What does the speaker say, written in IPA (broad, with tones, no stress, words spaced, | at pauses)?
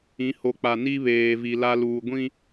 ĩ˨˦ho˨k͡pa˨ ni˦βeː˨vi˨ la˦ luː˨ɡʷĩ˦